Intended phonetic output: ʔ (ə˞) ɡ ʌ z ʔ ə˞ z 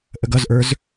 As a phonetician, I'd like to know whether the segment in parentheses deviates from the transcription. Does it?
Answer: yes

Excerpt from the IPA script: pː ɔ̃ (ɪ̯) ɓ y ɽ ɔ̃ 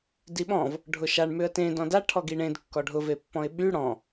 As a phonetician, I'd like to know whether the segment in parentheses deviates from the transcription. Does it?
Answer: no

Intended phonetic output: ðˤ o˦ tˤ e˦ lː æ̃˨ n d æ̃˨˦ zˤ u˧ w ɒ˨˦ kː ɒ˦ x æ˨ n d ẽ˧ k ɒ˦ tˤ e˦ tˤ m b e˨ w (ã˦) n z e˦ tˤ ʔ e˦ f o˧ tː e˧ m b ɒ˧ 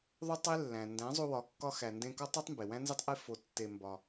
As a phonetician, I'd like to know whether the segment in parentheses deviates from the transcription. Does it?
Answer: yes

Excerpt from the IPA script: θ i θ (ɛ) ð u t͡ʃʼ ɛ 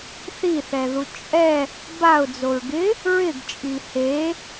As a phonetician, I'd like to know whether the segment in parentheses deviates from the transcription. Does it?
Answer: no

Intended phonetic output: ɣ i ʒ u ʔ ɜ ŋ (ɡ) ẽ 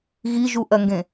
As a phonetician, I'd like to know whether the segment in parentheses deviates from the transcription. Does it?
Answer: no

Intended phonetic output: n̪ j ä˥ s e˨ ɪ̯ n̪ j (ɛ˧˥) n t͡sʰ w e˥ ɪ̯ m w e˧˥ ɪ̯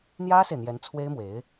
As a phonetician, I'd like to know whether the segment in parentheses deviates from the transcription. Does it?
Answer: no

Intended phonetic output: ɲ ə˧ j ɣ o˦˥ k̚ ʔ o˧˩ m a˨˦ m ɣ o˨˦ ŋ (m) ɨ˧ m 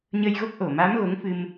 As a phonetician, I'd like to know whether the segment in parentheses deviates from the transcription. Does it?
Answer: yes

